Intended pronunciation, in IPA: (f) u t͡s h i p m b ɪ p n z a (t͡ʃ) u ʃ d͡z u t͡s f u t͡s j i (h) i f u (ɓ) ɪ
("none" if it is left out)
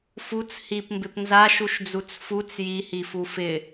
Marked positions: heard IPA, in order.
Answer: f, ʃ, h, f

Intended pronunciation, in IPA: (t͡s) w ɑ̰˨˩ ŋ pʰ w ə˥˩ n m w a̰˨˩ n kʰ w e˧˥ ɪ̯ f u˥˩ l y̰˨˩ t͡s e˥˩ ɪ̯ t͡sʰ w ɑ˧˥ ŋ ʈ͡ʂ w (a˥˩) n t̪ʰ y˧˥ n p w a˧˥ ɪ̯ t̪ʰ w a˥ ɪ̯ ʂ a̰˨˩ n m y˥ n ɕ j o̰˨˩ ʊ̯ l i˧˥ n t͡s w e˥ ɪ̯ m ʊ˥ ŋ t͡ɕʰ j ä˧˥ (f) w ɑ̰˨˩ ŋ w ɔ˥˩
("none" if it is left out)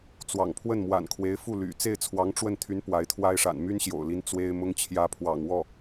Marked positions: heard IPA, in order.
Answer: t͡s, ə˥˩, pʰ

